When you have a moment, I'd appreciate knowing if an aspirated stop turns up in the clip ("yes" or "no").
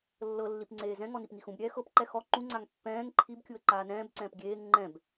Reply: yes